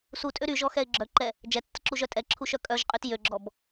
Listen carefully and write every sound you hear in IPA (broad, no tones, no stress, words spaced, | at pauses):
sutʼø ɾyʒɔxɛɪ̯ ɡ͡ǁœǃɛ | d͡ʒɛtːəǁuʒœ tʼɛǁʰuʃœ kʼœʒqʼyt jøɡ͡ǁɔb